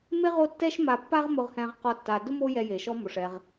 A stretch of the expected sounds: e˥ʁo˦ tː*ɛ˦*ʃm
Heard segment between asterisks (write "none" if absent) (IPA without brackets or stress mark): ɛ˦